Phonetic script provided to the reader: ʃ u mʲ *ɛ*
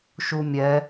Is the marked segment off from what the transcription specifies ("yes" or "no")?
no